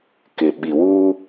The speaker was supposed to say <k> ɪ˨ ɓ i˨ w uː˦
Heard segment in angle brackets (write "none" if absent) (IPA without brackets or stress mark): k